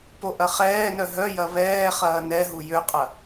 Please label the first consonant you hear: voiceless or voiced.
voiceless